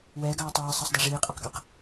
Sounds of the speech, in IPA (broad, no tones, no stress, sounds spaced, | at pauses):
w ɛː ɡ ɑː tˤ ɛː ə̯ sˤ ɑ sˤ d ɑ ʐ iː qʼ ɑ q ɡ ə˞ q